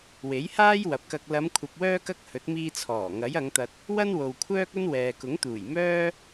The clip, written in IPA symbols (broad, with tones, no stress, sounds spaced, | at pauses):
w e˨˥ j h aː˥ j w ɐ˨ p̚ k ɐ˧ k̚ l ɐ˨˧ m kʷʰ ɐ˨ p̚ w œː˧ k ɐ˧ k̚ h ɵ˨˥ t̚ m iː˧ t͡sʰ ɔː˨˩ ŋ ɐ˨˥ j ɐ˨˧ ŋ t̪ ɐ˧ t̚ | w ɐ˥ n w o˨ w kʷʰ œː˥ k̚ ɵ˥ n w ɛː˨ k ʊ˨˥ ŋ t̪ uː˨˩ j m œː˥